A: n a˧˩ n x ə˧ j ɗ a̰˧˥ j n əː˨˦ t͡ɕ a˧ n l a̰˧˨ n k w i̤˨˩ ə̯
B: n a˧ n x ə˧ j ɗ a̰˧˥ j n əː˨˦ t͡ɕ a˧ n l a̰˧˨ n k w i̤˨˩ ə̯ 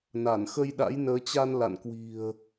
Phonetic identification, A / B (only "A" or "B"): A